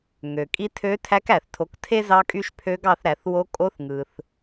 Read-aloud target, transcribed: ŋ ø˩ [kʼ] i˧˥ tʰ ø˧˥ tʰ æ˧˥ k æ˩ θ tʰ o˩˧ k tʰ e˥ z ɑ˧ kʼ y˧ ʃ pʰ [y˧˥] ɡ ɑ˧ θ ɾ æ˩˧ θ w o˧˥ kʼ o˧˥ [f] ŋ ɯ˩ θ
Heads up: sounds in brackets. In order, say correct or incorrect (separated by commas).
correct, incorrect, incorrect